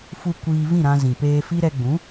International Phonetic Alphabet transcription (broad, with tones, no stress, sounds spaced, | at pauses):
f u˧ kʷ iː˧ v ĩ˦˨ ɾ ã˧ z ĩ˨ p eː˧ f i˦ ɾ ɛ˧ ɡ͡b ũ˨˦